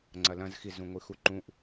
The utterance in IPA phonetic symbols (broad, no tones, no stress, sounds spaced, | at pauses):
ŋ͡ǀ ɐ l ɐ̃ z x i z ũ ŋʷ ɨ x u ǃ ũ ʔ